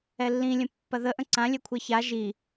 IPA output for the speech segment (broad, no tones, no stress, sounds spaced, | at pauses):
ɛ lː ĩ lʲ ə̃ pː ɐ ð ə ʔ ə̃ ǀ ã lʲ ɛ kʷʰ ɛ ç a ʒ i